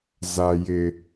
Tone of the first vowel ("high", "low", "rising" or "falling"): low